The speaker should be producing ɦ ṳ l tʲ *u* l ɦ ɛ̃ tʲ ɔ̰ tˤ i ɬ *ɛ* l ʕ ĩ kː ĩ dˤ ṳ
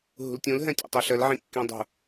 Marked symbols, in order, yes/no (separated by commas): no, no